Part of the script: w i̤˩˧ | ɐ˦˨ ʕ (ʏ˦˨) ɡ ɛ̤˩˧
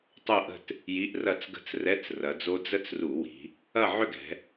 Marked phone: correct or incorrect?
correct